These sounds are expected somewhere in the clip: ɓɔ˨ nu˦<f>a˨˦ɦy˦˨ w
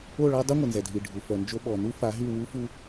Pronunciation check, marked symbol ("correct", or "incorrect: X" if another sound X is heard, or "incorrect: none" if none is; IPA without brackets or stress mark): correct